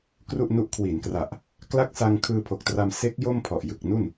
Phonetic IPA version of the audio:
kru˥˩ʔnu˦˥ʔ kʰwi˩˦nkra˨˩ʔ | kla˦˥k̚sa˧ŋ kʰɯː˧pʰo˨˩k̚tra˧m se˦˥k̚ jo˥˩mpʰɔ˨˩ʔ jɯ˨˩k̚nu˥˩n

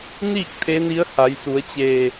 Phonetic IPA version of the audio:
niː˥˨k̚ t̪ʰe˧˥ni˧˥ə̯ ha˩˧jsu˩˧ə̯t͡ɕe˧˩

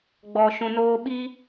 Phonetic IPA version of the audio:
ɡ͡bɔ˨ʃũ˨noː˧ ɓi˦

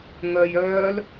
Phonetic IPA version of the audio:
ŋœjœːl

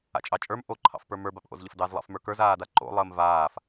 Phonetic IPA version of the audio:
a̰t͡ʃʼɑt͡ʃʼə˞m ʔo ǃʰɑ̰fpə˞mə˞ bapʔo̰zʎəfdɑz lˠɑ̰fmə˞kə˞z aːdaǃo̰ lˠəːmvaːf

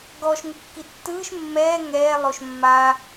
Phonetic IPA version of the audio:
ɡɔʃ ŋukːitːɯːʃ mːɛː ŋɛː lˠoʃmːaː

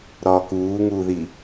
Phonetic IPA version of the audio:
ɾɒːkuː ŋuːði

